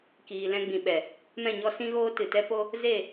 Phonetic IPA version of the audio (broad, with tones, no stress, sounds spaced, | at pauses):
k iː˨ l ɛ̃˧ ɡ͡b ĩ˨ ɓ ɛ˨ | m ɛ̃˦˨ ɲ ɔ˦ s ĩ˦ ɣ oː˦ t ɨ˨ t ɛ˦ p o˦ | z e˦˨